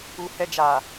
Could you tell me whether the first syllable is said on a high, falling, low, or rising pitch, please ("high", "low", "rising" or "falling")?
low